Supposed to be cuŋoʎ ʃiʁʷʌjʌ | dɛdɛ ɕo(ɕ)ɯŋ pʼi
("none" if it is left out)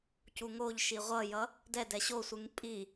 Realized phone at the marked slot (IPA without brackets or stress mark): sʷ